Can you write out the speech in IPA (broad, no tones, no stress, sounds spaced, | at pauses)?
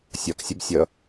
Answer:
sʲ ɒ k sʲ ə b sʲ ʌ